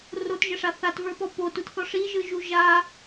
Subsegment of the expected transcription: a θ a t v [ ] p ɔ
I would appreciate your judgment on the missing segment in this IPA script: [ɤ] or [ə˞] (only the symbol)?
ə˞